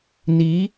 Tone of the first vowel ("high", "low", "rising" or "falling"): rising